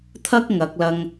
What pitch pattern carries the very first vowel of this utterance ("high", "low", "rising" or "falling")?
high